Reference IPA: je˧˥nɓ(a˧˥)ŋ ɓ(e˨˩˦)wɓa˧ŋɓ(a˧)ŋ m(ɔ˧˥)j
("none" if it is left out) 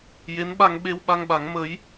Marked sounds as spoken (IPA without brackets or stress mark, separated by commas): a˧, e˧, a˨˩˦, ə˧˥